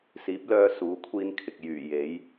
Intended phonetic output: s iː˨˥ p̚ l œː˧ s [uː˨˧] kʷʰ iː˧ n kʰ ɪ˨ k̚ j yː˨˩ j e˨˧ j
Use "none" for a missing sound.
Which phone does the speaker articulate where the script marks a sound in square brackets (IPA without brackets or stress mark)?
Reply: uː˨˧